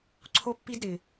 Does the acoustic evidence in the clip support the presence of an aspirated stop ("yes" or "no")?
yes